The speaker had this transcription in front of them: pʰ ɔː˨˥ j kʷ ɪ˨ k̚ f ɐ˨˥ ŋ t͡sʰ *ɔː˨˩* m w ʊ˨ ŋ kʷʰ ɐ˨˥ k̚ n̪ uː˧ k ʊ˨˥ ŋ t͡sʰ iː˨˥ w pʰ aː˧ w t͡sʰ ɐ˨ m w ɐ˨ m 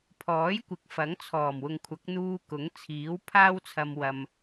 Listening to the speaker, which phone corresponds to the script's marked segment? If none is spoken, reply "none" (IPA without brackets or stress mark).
ɔː˨˩